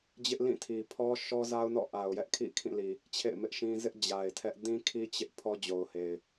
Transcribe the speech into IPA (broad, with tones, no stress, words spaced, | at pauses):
d͡ʑɪ˦ʔlĩ˦˨tʰi˨ pʰɔ˦ʃɔ˦za˦ʊ̯ nɔ̰˦˨ʔa˨ʊ̯jɛ˦ʔkʰḭ˦˨ kʰĩ˦˨li˨ | t͡ɕʰḛ˦˨ɪ̯ mɪ˦ʔʃĩ˦ zɪ˦ʔ d͡ʑa˨ɪ̯ tʰɛ˦ʔ dĩ˦kʰi˦ t͡ɕɪ˦ʔ pʰɔ˦d͡ʑo˨ʊ̯he˨ɪ̯